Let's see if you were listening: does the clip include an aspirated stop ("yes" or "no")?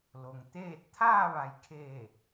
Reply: yes